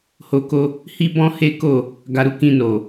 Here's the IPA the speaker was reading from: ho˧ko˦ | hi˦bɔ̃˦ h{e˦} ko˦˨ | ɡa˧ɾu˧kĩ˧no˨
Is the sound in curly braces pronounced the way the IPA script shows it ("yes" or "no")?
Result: yes